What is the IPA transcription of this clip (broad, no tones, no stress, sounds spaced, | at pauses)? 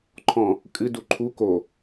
ǃʰ ɔ̃ | kʼ ɨ d u ǃʰ u k o